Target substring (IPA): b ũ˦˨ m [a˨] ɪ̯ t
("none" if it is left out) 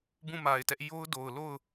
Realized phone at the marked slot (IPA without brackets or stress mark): a˨